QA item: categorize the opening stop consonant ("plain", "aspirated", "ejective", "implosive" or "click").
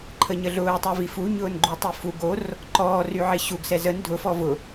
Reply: click